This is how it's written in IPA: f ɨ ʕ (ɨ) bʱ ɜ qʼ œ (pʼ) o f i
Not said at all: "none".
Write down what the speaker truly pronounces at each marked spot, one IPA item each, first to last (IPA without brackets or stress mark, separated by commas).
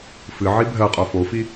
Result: i, f